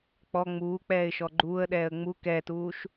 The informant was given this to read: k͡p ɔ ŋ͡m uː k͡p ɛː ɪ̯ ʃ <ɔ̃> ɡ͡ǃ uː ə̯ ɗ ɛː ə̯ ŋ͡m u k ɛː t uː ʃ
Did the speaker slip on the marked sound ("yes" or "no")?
yes